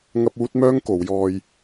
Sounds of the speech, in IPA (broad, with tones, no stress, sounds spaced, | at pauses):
ŋ ɐ˥ p̚ uː˥ t̚ m œː˥ ŋ k o˨˧ w j ɔː˧ j